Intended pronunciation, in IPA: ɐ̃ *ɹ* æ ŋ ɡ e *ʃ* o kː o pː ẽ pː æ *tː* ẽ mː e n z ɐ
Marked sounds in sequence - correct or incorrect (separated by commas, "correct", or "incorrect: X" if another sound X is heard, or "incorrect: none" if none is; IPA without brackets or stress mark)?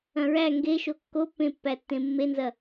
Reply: correct, correct, correct